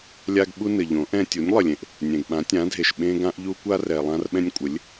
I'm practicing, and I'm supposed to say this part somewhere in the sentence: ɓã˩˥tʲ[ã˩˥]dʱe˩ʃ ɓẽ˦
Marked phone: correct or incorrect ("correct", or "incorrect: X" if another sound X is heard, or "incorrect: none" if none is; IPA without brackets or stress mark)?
correct